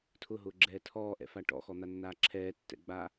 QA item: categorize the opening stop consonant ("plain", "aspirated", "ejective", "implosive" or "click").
aspirated